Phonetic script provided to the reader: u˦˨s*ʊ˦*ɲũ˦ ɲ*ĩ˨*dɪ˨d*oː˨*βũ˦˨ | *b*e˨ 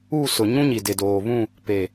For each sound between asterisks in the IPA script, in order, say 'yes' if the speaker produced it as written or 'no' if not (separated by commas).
no, no, yes, no